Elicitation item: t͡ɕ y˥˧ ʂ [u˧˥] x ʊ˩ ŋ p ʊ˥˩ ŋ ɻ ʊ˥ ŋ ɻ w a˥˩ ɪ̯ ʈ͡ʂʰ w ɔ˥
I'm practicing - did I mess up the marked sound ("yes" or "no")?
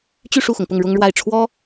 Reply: yes